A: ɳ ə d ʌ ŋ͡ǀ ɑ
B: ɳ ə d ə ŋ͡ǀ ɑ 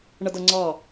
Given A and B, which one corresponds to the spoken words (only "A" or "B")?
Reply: A